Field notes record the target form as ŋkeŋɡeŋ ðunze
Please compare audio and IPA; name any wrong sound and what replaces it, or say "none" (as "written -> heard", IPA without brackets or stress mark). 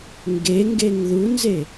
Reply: k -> ɡ